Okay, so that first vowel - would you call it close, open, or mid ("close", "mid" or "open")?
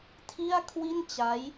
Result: close